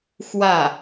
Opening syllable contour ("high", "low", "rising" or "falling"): falling